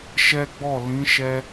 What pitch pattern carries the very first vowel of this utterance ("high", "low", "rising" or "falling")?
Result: high